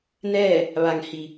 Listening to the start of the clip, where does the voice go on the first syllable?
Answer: falling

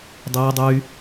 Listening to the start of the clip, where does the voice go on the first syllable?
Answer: high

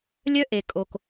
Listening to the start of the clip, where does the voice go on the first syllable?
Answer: high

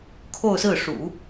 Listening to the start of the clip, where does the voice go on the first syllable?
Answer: falling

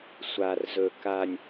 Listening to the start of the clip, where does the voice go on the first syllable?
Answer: low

